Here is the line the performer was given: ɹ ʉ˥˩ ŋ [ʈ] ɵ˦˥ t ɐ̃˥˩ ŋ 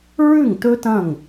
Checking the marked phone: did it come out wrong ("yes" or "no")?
yes